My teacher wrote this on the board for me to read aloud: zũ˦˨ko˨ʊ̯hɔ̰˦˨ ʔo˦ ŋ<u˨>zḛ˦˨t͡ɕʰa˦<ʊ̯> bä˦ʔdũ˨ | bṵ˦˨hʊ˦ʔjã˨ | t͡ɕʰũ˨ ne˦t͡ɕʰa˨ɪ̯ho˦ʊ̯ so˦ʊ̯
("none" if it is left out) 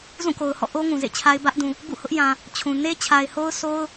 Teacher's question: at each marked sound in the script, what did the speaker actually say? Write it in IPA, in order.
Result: ũ˨, ɪ̯

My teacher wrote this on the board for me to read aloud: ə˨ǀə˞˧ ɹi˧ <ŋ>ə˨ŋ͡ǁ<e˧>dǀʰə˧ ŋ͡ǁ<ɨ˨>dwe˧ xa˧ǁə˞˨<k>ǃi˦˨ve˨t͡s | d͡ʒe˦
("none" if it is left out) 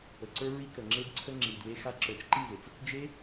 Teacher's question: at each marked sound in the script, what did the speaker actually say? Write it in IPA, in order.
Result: k, e˧, i˨, t͡ʃ

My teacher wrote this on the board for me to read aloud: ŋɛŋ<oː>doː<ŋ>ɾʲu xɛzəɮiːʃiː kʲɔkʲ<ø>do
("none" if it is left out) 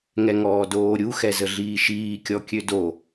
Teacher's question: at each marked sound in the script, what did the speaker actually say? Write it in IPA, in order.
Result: ɔː, none, ø

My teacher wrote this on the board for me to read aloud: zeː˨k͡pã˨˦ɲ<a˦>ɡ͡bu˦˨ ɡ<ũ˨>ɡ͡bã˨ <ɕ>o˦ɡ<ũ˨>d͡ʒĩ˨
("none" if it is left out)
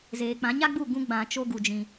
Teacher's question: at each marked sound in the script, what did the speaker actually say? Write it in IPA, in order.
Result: a˦, ũ˧, t͡ʃ, u˨

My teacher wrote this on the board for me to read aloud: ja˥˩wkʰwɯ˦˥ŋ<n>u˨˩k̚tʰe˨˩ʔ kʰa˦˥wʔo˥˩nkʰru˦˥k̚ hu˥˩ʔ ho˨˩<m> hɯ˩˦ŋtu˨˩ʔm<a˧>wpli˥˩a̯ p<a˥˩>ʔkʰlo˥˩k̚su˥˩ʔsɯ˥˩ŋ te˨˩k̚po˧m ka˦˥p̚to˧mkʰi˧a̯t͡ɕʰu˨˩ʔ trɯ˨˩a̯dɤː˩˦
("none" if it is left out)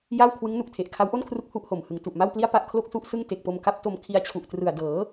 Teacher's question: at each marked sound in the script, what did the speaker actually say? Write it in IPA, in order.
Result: n, m, a˥˩, a˥˩

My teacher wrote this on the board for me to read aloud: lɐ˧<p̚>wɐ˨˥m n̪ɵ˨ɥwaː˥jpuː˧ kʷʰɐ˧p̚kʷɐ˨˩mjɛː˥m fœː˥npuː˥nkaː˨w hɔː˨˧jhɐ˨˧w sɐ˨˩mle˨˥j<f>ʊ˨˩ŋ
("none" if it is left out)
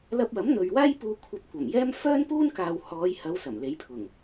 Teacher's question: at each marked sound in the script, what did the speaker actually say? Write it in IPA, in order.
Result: p̚, pʰ

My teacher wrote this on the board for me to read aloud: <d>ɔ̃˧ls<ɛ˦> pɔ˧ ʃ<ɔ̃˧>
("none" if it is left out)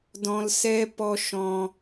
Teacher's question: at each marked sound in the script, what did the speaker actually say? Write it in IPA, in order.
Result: d, ɛ˦, ɔ̃˧

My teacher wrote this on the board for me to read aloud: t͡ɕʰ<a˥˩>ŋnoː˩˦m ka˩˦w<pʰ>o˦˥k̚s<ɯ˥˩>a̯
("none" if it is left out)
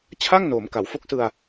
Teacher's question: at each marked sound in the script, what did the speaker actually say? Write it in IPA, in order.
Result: a˥˩, f, ɯ˧

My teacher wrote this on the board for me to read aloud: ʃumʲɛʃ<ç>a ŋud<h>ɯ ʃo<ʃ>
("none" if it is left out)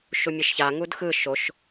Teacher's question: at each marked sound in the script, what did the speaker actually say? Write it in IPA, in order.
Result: ç, x, ʃ

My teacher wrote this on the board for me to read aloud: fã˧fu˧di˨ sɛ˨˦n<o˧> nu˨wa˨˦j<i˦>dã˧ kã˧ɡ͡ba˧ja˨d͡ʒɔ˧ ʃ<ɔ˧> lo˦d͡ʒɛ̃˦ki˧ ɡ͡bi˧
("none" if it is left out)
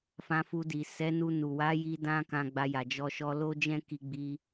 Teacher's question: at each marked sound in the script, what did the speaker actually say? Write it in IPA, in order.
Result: u˧, i˧, ɔ˧

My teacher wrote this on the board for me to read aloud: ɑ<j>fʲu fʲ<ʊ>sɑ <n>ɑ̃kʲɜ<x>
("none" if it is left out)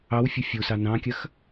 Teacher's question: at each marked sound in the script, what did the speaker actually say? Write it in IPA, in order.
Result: w, u, n, x

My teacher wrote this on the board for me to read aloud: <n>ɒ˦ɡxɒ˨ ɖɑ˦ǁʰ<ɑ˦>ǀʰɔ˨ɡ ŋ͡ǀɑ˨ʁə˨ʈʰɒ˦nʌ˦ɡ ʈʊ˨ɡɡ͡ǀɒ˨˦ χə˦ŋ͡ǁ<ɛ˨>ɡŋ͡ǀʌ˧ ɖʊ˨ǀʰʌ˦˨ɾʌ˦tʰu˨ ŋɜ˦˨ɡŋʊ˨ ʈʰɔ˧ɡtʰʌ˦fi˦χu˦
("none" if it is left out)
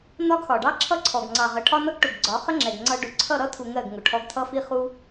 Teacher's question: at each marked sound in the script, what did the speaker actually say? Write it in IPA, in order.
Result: n, ʌ˦, ɛ˨

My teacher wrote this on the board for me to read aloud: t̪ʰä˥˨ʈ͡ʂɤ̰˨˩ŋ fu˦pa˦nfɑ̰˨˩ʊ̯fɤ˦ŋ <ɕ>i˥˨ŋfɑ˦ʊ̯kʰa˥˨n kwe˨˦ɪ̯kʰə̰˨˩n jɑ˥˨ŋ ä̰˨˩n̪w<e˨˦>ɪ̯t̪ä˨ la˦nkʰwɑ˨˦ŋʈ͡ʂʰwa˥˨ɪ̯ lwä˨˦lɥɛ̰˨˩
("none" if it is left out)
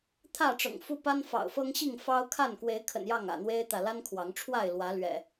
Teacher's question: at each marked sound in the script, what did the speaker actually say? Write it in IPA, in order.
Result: ɕ, e˦

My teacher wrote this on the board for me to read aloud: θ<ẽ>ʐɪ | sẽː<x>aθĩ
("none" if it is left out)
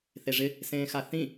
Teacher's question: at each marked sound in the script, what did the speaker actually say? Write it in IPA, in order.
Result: e, x

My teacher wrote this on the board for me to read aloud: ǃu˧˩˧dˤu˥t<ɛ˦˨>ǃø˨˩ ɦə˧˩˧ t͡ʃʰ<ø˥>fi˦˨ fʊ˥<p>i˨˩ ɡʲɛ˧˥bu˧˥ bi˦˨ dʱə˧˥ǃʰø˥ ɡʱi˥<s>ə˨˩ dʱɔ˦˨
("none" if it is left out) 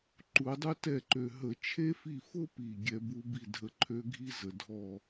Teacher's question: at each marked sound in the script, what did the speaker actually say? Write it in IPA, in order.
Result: ɛ˦˨, e˥, p, z

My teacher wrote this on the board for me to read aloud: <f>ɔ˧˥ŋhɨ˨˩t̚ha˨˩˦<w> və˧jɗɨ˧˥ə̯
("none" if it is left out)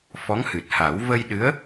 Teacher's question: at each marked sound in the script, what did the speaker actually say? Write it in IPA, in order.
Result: f, w

